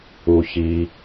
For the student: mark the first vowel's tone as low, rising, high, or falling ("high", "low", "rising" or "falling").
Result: low